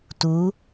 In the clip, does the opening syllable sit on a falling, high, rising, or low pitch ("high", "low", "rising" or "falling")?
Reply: rising